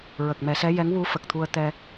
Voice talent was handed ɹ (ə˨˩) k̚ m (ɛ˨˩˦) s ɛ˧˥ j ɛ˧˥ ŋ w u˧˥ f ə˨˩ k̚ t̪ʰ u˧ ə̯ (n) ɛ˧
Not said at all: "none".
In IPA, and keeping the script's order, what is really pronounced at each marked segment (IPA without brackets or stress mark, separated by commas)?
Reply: ə˨˩, ɛ˨˩˦, t̪